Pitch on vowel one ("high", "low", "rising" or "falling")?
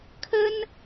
high